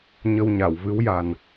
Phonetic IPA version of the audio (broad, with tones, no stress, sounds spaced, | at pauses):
ɲ ə˧ w ɲ a˨˩˨ w v ɨ˧˥ w j a˨˩ n